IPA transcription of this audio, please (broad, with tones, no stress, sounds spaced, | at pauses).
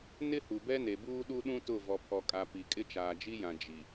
n ɪ˦ h u˨ b ɛ˦ n e˨ b uː˦ ɗ u˦ ɗ ũ˦ t ʊ˦˨ v ɔ˨ pʰ ɔ˨ kʼ a˨ p i˨ kʼ ɪ˦ t͡ʃ aː˨ d͡ʒ i˦ j ã˨ d͡ʒ i˨